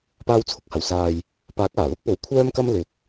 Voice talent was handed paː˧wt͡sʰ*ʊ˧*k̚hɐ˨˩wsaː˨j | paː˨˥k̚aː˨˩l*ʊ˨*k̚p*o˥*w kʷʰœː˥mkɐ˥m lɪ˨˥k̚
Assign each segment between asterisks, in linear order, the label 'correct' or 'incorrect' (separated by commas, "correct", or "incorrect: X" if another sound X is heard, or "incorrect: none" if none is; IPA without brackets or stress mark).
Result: incorrect: ʊ˨, incorrect: ʊ˥, incorrect: o˨